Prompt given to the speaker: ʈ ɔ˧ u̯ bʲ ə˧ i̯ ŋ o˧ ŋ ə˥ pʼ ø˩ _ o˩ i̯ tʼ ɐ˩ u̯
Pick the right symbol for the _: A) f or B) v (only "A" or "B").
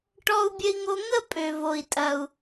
B